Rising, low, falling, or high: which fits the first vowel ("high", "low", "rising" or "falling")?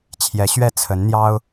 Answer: rising